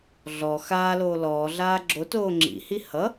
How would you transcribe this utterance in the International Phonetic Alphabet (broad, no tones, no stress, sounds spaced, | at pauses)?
ɮ ɔ x aː l oː l ɔː ɮ aː ɡ͡ǁ o t oː ŋ͡ǁ ḭ h i h ʌ